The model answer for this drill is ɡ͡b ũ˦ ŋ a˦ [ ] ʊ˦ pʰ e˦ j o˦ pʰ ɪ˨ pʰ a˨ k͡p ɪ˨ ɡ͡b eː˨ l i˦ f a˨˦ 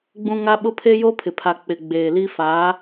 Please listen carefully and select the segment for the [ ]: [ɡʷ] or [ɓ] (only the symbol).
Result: ɓ